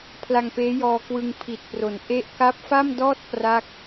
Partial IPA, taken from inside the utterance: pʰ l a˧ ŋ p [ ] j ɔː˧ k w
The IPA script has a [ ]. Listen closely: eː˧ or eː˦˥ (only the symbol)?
eː˦˥